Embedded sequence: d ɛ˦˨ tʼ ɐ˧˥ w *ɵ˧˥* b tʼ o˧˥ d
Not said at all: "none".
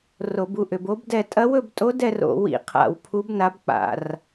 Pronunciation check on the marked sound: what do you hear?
ɵ˦˨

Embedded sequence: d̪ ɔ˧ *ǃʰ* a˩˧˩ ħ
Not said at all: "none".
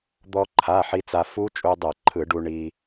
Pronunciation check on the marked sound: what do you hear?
ǃʰ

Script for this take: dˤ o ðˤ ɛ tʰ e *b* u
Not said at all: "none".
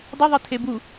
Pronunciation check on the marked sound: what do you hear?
b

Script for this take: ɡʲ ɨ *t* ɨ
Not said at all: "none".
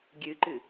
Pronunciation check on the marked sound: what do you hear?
ǃ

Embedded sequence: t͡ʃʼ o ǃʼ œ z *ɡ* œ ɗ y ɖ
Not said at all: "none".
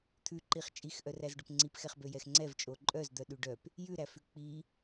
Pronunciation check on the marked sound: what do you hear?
d̪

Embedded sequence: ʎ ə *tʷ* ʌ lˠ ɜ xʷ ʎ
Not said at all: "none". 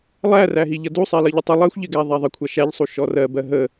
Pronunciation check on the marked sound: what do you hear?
tˤ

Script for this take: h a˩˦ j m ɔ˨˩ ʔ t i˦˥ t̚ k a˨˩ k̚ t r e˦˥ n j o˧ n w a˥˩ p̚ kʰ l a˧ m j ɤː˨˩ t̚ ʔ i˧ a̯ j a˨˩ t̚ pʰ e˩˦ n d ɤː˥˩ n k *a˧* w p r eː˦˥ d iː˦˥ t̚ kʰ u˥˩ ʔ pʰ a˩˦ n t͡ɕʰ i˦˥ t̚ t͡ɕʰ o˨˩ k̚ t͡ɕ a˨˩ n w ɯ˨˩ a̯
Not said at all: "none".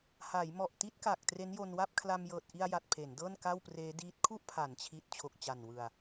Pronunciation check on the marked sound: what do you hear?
a˥˩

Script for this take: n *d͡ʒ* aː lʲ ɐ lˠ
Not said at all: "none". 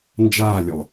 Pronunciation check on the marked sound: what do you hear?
d͡ʒ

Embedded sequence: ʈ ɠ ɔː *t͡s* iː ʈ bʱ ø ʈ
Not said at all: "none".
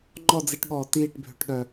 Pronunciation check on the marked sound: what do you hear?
t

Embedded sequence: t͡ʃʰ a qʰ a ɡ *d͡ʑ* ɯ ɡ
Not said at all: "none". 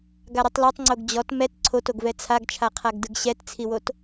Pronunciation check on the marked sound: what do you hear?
d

